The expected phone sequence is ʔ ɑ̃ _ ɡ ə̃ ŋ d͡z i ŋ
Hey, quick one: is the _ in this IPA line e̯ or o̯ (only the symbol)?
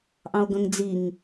o̯